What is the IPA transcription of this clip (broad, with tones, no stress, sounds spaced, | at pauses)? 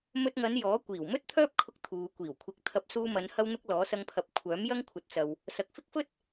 m ɵ˧ t̚ ŋ ɐ˨˧ n j ɔː˨˥ kʷ iː˨˩ w m ɵ˥ t̚ t̪ʰ œː˥ p̚ kʰ ʊ˧ k̚ t̪ʰ uː˨ kʷ iː˨˩ w kʷʰ ɪ˨˥ k̚ t̪ʰ ɐ˨˥ p̚ s uː˧ m ɐ˨˧ n h ɐ˥ w n̪ ʊ˥ k̚ l ɔː˨˥ s ɐ˧ ŋ pʰ ɐ˨˥ p̚ kʷʰ œː˨˥ m j ɐ˥ ŋ kʷʰ ɐ˨˥ t̚ t͡s ɐ˨ w | s ɐ˨ k̚ f ɪ˥ k̚ f ɵ˥ t̚